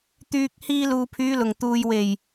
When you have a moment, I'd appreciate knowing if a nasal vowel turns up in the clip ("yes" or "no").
no